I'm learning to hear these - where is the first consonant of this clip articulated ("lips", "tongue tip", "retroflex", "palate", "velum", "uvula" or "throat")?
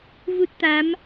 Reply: lips